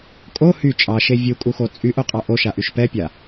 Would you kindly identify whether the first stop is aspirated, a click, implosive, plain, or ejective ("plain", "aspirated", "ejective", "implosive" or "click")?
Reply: ejective